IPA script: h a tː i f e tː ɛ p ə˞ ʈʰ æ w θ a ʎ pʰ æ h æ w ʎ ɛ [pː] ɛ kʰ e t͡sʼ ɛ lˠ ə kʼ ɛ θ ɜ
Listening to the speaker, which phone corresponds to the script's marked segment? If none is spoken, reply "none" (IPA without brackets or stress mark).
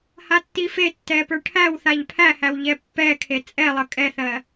pː